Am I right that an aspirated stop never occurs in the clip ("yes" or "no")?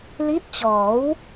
yes